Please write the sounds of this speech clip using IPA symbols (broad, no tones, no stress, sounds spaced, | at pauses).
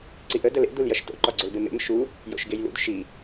ǀ i ʔ ə d ə l ḛ d u l j ɐ ʃ t o̰ ǃ ɒ ɡ͡ǀ o l b e m ḛ m ʃ u | j o̰ ʃ ɡ e j l ṵ d ʃ i